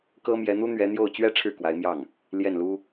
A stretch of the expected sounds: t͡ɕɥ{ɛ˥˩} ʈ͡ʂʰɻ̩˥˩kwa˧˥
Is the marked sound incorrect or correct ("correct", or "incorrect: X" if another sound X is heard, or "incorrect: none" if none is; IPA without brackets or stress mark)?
incorrect: ɛ˥